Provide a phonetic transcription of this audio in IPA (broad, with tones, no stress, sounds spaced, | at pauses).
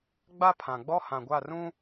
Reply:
ɡ͡b a˦ pʰ ã˨ ɡ͡b ɔ˦ h ã˨ ɡʷ a˦˨ r ũ˦